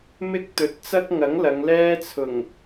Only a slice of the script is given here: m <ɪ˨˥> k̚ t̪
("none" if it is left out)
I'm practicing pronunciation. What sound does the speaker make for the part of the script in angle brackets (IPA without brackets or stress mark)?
ɪ˥